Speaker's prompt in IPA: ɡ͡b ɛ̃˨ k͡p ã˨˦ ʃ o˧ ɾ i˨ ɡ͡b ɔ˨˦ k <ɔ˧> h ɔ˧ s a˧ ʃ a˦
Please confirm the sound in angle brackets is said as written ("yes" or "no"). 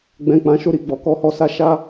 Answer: yes